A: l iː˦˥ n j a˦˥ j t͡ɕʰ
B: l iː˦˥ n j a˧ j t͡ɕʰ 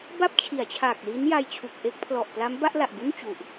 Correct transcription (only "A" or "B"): B